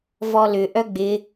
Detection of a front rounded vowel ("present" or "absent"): present